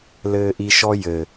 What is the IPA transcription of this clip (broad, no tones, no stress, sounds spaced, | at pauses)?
l ɘː ʔ i ʃ ɔ j ɘ